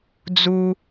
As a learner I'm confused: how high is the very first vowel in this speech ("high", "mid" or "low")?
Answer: high